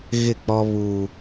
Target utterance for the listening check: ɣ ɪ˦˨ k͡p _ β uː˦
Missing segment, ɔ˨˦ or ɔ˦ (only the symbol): ɔ˦